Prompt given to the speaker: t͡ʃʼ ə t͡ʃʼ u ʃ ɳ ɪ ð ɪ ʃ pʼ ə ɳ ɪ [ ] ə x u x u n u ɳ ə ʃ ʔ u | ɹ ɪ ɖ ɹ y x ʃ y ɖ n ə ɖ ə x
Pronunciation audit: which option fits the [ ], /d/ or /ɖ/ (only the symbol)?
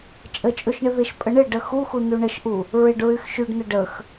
ɖ